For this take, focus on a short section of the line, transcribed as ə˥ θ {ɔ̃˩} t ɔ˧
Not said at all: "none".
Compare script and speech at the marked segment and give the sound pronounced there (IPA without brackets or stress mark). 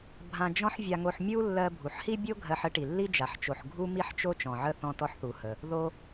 ɔ̃˧